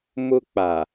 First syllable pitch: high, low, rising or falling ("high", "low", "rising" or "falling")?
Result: high